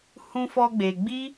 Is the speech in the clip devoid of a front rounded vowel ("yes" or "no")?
yes